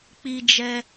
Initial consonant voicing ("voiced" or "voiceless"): voiceless